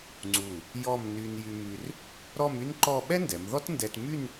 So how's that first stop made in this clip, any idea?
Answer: click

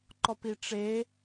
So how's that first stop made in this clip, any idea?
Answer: click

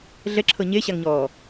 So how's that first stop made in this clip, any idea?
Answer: click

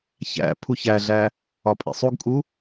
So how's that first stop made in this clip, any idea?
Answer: aspirated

